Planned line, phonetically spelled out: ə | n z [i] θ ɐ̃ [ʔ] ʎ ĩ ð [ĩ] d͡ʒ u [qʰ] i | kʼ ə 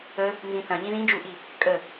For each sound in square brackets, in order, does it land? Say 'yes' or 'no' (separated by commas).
no, no, yes, no